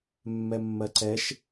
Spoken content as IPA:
mː ɛ mː ɜ ǀ ɛ ʃ

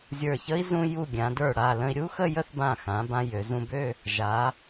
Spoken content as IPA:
zʲ ə˞˧˩ ç ə˥ i̯ z ũ˧ j u˧˩ ɡʲ ã˩˧ d ə˞˧˩ ɽ a˧˩ l ə̃˧ i̯ ɾʲ u˥ x ə˥˧ j ə˥ θ b ã˧˩ x ã˩˧ b ã˧ j ø˩˧ z ũ˧ b ø˥˧ | ʒ a˩˧

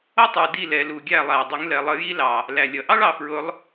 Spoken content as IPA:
ʌ˦ tˤ ə˞˨ d i˦˨ l ɛ˨˦ l u˨ ɡʲ æ˦˨ lˠ æ˨ ɪ̯ dˤ ʊ˨˦ ŋ l ɛ˨ lˠ ə˨˦ j i˦ l ɑ˨ | l æ˨ lʲ ʌ˨ ʔ ɑ˦ ɭ ɑ˨ f ɹ ʊ˨˦ lˠ

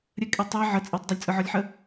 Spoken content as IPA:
ɾʲ ə kʼ e tˤ e ʕ ə t͡sʼ e tˤ dˤ ə lʲ t͡sʼ ɯ ʕ ɔ lʲ ħ ə

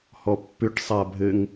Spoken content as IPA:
h ɔ pː ʏ ʈ sˤ a bʱ ɘ ŋ

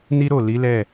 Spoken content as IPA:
n i˦ ɾ o˦˨ l i˨˦ l ɛ˦˨

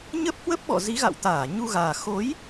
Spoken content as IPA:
ɲ ə˦˥ p̚ h w ə˦˥ p̚ ɓ ɔ̰˧˨ z i˨˦ ɣ a̰˧˨ w t̪ aː˧˩ ɲ u˧ ɣ aː˨˩ x o˨˦ j

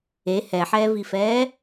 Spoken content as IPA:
e h ɛ ħ ɛː v i f ɛː

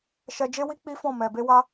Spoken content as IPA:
ʃ ɛ˧ d͡ʒ e˦ w i˦ k͡p i˦ f ɔ̃˦˨ m ɛ˨ b e˧ w a˧

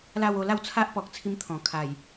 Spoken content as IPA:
l a˥˧ w o˥˧ l a˥˧ w t͡sʰ a˦ ʔ p ɔ˨ k̚ t͡sʰ i˧ m t̪ʰ ɔ̃˨˩ kʰ a˨˩ j

